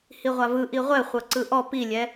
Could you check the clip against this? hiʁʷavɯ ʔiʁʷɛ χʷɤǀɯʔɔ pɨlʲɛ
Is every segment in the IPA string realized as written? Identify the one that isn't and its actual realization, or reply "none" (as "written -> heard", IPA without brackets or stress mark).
ɨ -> i